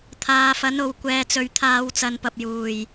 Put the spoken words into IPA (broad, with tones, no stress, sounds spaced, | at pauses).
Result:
t̪ʰ aː˨˧ f ɐ˨˥ n o˨˧ w kʷ ɛː˨ t͡s ɵ˨ ɥ t̪ʰ aː˨˧ w t͡s ɐ˨˧ n p ɐ˨ p̚ j uː˨˩ j